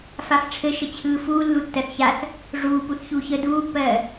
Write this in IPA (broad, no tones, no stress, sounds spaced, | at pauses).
f a f ʈ͡ʂʰ ɘ ʃ ə t͡ɕʰ ɯː f uː lː u tː ɜ θ ç a θ | ʐ uː p u θ ç uː ç ə d uː pː ɜː